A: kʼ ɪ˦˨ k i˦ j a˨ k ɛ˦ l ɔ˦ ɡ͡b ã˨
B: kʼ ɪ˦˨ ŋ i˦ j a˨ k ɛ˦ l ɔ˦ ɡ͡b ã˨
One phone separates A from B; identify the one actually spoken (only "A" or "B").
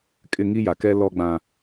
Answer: B